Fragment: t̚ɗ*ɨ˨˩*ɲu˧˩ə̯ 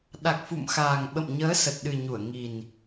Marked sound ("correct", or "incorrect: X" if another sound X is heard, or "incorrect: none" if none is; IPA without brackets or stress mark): correct